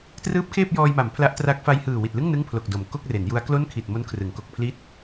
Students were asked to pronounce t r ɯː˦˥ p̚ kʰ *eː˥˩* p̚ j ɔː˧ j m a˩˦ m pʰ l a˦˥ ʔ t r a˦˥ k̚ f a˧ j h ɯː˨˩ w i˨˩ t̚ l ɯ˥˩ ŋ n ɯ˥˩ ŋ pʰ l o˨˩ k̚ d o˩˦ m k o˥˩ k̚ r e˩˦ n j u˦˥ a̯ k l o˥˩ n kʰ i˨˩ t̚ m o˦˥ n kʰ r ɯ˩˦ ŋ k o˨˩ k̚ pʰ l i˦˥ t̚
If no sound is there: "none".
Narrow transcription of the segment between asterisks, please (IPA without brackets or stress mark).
eː˥˩